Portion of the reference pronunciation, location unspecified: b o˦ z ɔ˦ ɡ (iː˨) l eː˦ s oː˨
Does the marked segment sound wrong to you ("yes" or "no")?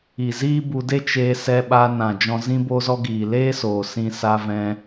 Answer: no